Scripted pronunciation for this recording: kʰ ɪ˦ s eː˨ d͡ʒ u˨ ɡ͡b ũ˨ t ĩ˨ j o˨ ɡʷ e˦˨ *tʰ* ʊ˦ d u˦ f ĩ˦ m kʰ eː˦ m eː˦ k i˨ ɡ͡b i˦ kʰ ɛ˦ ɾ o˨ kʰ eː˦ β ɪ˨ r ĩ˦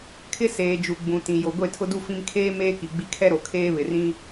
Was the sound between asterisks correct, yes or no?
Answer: yes